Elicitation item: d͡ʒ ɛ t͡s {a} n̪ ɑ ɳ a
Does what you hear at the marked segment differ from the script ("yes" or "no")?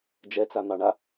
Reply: no